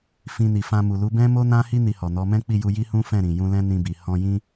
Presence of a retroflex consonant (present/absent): absent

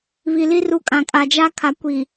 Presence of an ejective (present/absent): present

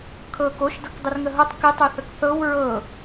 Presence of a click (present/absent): absent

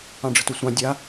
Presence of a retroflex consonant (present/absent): present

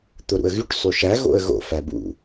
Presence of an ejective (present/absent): absent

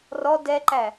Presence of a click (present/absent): present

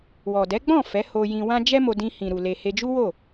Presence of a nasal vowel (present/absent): present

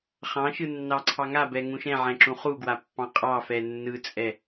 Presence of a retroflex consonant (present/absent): absent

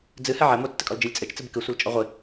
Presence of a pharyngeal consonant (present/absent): present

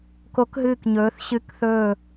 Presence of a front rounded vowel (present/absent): absent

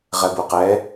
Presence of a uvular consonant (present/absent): present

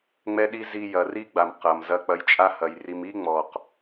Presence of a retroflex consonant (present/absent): absent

